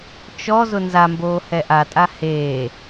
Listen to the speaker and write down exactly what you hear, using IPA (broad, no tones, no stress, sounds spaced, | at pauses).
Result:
t͡ʃ ɔ z ʊ n z a m b oː h ɛ ʔ a tʼ a h eː